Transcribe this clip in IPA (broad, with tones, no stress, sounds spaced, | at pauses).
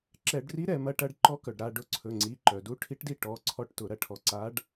ǁ ɛ˧˩˧ ɖ r i˧˥ ɾ ɛ˧˩˧ m ɐ˧˥ ʈ ɐ˧˥ ɖ ǃ ɔ˧˥ k œ˩ ɖ ɾ a˦˨ ɖ ʊ˦˨ ǀʰ ɵ˩˧˩ ŋ͡ǀ i˩˧˩ ǃ œ˩ d u˧˥ ʈʰ i˧˥ ʈ d i˦˨ ʈ ɔ˩˧˩ ǀʰ ɔ˦˨ ʈ t ʊ˧˩˧ ɾ ɐ˦˨ ʈʰ ɔ˧˩˧ ǀ a˧˥ ɖ